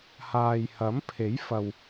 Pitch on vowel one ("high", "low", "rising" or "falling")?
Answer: low